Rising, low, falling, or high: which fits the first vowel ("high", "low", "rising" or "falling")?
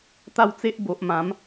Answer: falling